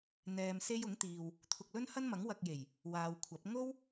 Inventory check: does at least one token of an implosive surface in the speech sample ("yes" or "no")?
no